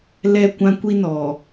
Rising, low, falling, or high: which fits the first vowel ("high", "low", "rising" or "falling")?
high